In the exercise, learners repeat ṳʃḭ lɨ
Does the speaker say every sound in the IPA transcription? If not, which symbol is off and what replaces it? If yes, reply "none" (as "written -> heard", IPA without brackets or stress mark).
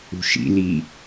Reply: ɨ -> i